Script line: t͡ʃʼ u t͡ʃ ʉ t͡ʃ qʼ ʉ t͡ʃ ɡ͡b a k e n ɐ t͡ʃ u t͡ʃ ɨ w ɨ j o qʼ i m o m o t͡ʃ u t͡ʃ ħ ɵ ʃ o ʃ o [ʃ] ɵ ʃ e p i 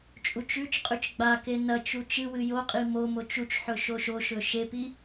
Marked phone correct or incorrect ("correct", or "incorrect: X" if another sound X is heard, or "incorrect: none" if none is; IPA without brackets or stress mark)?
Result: correct